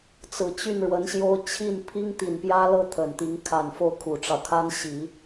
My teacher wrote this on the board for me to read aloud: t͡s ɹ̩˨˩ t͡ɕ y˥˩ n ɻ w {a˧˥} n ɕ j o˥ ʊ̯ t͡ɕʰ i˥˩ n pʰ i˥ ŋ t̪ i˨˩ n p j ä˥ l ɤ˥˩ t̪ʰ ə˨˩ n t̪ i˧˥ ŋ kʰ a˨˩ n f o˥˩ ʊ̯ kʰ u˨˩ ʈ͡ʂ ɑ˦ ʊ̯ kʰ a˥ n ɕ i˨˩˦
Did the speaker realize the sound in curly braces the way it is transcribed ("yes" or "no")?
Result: no